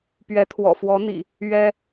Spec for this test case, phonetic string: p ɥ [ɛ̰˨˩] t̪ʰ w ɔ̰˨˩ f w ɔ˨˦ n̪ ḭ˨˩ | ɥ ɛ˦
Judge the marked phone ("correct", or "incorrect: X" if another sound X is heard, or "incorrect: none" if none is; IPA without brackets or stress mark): incorrect: ɛ˨˦